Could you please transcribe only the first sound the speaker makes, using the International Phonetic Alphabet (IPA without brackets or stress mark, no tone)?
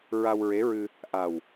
ɹ